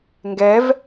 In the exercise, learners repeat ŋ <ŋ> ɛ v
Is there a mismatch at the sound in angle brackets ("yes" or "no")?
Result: yes